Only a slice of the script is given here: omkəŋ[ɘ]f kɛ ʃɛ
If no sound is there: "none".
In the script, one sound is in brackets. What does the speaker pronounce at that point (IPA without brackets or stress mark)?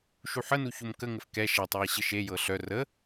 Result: ɘ